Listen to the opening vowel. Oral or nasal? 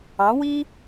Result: nasal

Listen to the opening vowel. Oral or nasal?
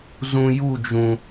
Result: nasal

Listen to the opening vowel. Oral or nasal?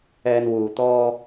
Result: oral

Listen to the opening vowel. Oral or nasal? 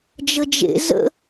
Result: oral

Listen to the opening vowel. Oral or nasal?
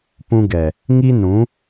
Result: nasal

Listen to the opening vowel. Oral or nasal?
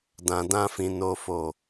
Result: nasal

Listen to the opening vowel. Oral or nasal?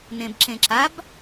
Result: nasal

